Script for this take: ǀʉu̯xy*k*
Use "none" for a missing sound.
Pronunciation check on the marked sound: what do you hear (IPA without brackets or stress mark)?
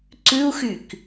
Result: k